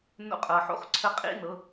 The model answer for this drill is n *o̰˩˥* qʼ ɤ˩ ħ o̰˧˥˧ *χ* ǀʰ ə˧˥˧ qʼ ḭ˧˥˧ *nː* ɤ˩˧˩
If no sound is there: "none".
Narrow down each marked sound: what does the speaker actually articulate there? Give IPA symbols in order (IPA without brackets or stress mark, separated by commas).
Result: o̰˧˥˧, χ, n